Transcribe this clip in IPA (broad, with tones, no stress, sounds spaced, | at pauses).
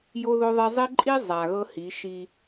j o˦ ð o˦ ðˤ e˦ zˤ e˦ ǃʼ i˦ zˤ a˨ ɣ ɤ˦ h i˨˦ ʃ i˦